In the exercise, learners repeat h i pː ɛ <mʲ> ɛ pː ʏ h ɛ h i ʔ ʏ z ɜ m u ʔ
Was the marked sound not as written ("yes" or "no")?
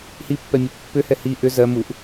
no